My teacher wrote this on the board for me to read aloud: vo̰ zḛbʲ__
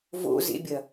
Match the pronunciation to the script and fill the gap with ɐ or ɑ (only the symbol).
ɐ